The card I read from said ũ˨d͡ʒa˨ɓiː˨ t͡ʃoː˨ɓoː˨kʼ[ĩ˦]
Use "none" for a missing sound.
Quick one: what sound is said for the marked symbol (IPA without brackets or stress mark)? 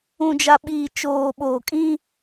ĩ˦